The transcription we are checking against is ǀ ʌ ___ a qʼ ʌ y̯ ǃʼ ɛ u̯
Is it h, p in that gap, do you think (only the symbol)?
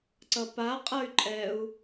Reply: p